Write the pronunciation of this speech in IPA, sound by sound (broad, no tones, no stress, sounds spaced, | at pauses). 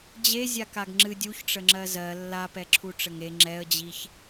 d͡ʑ e zʲ a k a ɡ ŋ͡ǁ ɨ dʲ u ç ʈ͡ʂ ə ŋ͡ǁ ɜ z ɜ lː a p ɛ ǁʰ u ʈ͡ʂ ə ŋ e ŋ͡ǁ ɛ ə̯ d͡ʑ i ç